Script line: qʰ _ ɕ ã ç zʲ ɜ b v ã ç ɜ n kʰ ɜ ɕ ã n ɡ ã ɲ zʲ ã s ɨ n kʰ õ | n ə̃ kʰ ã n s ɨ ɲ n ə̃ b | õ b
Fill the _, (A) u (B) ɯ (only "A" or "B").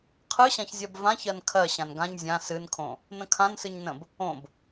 B